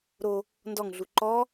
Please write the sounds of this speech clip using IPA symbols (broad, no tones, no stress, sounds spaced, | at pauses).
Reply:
ɾ o | n d ɔ ŋ ɮ u ǃ ɔ